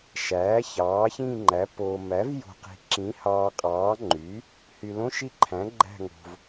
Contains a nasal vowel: yes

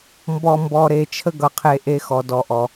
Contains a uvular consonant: yes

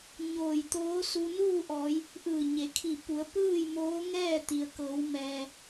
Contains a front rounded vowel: no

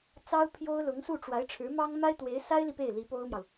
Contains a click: no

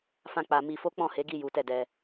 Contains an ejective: no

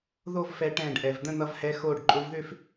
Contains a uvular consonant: no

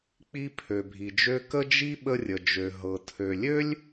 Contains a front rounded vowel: yes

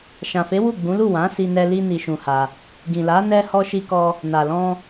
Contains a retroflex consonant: no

